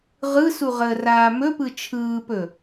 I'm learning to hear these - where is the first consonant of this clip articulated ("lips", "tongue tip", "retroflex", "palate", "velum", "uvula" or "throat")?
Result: uvula